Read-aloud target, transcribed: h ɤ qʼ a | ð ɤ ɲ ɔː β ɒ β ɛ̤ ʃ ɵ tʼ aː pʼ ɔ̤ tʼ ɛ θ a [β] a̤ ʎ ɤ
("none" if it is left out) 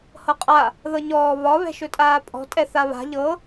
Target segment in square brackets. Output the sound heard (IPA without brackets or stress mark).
β